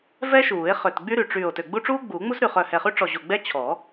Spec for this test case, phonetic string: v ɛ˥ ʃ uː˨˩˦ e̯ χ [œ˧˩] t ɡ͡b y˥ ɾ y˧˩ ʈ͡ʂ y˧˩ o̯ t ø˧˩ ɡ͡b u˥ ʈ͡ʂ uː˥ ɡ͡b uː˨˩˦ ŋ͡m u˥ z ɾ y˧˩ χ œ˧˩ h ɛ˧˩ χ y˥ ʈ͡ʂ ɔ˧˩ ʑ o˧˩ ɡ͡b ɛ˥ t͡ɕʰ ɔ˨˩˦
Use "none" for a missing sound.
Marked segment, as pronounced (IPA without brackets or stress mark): ø˧˩